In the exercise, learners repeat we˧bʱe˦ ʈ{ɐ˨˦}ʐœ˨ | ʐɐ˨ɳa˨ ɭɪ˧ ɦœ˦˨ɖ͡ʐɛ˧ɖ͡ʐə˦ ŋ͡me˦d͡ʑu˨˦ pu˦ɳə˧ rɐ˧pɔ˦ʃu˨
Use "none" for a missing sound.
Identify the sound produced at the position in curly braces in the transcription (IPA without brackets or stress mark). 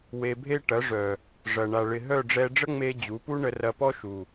ɐ˨˦